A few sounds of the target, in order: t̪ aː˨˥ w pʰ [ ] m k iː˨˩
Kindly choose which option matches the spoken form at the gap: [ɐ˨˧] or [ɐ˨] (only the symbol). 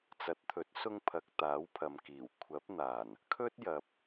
ɐ˨